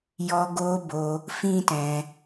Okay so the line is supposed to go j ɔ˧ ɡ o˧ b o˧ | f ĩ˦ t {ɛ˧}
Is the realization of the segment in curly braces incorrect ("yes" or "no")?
yes